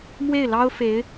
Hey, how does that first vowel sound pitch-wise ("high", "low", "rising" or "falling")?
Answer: falling